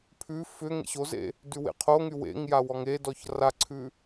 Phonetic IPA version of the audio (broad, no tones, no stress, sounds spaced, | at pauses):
pʰ ʉ f ʏ ŋ ḛ ɕ o z ḛ | d ʉ w ḛ qʰ o ŋ y w ḛ ŋ j a w ɔ ŋ e d ɔ ç r a ǀʰ ʉ